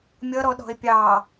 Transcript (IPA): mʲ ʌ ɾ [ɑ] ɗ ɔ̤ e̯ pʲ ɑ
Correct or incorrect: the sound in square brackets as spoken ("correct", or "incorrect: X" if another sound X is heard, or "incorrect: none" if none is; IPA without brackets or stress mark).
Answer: incorrect: ɔ